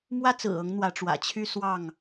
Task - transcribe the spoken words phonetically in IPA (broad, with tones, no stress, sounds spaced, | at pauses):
m w ä˦ t͡s ɹ̩˨˩ ɤ˨˦ ŋ n̪ w ä˨˦ ʈ͡ʂ w ä̰˨˩ t͡ɕʰ y˦ s w ɑ˥˨ ŋ